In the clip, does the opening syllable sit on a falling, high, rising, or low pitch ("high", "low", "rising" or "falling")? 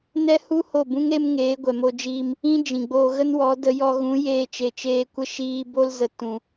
high